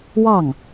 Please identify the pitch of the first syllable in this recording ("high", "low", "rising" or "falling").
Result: falling